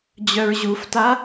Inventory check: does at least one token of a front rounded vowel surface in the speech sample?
yes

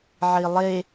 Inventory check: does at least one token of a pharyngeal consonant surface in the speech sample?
yes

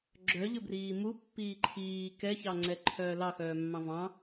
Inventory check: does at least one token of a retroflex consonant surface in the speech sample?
no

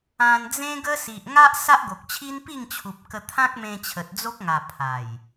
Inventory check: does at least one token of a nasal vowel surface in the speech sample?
yes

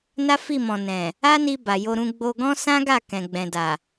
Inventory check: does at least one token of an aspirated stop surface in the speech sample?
no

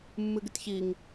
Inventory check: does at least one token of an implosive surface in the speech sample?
no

